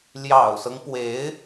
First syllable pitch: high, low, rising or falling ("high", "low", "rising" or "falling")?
low